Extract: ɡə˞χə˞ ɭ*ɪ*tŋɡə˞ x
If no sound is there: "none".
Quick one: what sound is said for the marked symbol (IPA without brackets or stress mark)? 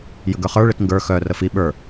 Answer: ɪ